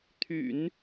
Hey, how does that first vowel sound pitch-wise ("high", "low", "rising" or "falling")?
low